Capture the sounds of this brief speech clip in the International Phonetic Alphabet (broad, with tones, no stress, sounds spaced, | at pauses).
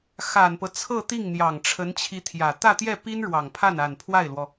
x a˨˩ n p ɤ˦ t͡sʰ ɤ˥˧ t̪ i˥˩ ŋ n̪ j ɑ˨˩ ŋ ʈ͡ʂʰ ə˧˥ n t͡ɕʰ i˧˥ t̪ʰ j ä˨˩ t̪ ä˥˧ t̪ j ɛ˥˩ p i˥ n ɻ w ɑ˨˩ ŋ pʰ a˥˩ n a˨˩ n pʰ w a˥˩ ɪ̯ l w ɔ˩